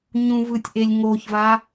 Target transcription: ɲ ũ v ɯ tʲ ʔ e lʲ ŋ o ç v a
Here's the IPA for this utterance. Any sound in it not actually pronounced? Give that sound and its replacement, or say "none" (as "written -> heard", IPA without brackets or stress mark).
none